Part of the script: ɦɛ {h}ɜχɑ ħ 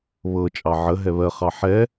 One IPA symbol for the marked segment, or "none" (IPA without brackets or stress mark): β